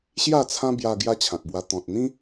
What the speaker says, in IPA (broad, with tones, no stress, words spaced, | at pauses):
ɕja˥˧t͡sʰã˦ bja˧ ɡja˦t͡ɕʰã˨k̚bwa˧ t̪ɔ̃˨t̚n̪ĩ˦